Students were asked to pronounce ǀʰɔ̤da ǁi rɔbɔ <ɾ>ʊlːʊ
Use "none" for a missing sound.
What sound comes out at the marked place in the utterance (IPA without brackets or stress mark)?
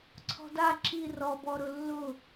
ɾ